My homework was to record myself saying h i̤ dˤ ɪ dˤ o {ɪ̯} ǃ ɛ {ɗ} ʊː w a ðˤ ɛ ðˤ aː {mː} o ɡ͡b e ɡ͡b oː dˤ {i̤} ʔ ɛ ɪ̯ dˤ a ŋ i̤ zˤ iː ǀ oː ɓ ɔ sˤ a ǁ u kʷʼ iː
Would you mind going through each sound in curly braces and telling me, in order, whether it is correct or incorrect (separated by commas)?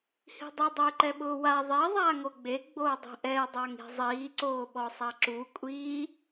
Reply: correct, incorrect, incorrect, correct